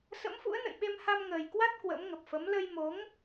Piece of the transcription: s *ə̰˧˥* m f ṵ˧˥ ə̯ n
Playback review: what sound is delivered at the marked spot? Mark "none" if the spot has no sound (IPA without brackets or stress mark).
ə̰˧˥